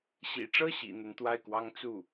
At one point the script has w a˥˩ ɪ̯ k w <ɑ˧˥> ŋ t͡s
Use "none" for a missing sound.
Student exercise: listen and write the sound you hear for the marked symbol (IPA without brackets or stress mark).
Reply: ɑ˥